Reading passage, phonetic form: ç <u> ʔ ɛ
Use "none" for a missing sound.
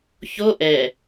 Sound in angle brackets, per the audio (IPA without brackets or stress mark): o